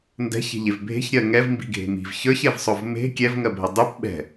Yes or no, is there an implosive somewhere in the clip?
yes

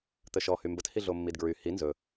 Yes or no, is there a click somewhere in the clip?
no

